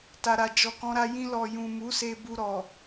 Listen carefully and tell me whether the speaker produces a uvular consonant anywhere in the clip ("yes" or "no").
no